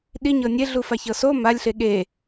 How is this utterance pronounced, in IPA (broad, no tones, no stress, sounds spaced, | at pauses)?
ɗ i ɲ ɤ nʲ e ɮ u f a ç ɤ s o m a lʲ ɬ e ɠ e